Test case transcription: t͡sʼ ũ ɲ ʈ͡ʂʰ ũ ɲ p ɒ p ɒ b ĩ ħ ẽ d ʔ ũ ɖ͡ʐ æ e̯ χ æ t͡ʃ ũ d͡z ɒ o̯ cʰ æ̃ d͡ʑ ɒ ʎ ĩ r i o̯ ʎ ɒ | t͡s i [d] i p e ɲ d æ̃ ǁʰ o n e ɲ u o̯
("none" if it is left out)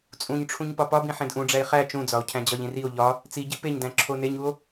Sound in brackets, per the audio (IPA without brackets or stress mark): ɟ